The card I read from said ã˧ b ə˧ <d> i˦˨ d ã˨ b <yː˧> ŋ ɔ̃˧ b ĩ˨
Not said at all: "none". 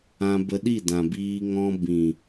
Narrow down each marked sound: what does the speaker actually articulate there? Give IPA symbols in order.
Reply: ɗ, iː˧

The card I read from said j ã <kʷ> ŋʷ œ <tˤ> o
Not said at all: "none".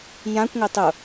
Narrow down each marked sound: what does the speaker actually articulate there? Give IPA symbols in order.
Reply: kʷ, tˤ

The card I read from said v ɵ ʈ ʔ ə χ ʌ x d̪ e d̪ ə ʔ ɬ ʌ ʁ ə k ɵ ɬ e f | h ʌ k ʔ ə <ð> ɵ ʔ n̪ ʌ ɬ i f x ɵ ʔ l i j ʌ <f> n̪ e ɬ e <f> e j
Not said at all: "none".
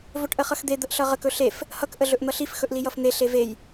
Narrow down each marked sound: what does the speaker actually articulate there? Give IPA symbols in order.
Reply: ɮ, f, v

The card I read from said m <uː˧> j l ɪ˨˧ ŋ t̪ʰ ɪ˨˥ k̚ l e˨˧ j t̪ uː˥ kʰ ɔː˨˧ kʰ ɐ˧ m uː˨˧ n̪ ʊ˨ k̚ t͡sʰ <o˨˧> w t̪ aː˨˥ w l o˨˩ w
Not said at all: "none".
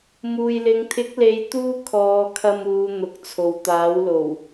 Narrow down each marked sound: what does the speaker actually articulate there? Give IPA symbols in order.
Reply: uː˨, o˨

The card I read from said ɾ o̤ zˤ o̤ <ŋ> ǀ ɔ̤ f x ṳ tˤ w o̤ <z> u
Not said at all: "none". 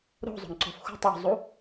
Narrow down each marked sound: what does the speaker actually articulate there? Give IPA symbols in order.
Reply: ŋ, zˤ

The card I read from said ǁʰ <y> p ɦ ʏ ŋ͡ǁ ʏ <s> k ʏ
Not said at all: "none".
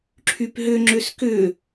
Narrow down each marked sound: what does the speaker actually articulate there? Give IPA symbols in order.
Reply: y, s

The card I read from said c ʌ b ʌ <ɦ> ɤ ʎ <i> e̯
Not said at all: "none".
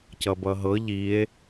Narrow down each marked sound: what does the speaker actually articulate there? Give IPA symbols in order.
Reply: ɦ, i

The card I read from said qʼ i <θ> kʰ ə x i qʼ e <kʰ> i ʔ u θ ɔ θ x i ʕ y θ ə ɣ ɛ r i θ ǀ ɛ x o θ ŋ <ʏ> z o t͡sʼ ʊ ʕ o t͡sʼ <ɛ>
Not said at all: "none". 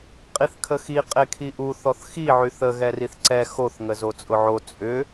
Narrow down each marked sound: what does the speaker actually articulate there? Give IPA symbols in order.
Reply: θ, kʰ, ə, ʏ

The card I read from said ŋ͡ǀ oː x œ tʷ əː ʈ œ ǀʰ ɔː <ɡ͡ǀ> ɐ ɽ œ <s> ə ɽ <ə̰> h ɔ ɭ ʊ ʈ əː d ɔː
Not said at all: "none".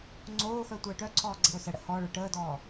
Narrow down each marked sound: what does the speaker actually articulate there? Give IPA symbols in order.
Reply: ɡ͡ǀ, s, ə̰

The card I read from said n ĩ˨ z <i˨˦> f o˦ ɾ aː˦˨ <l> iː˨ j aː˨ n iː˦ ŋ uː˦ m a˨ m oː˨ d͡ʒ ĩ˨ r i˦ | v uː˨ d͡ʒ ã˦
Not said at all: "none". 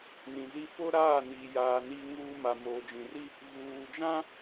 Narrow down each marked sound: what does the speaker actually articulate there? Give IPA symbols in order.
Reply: i˦, n

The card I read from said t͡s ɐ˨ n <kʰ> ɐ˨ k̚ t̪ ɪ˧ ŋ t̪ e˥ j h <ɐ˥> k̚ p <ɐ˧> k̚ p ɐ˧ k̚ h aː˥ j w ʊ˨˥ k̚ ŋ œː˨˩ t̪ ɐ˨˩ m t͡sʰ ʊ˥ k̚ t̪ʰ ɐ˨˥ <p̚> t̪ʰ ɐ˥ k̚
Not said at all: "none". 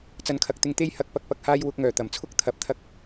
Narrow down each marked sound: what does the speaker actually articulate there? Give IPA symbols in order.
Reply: kʰ, ɐ˧, ɐ˧, p̚

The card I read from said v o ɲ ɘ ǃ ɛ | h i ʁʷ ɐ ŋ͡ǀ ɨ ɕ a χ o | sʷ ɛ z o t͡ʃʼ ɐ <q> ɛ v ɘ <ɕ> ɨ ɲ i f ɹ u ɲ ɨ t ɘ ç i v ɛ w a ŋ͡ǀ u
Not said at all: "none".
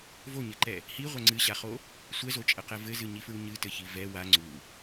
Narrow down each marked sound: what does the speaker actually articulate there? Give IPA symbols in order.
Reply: q, z

